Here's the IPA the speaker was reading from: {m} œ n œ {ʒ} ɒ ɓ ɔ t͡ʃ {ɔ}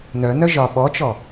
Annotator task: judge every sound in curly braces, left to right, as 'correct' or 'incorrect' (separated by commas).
incorrect, correct, correct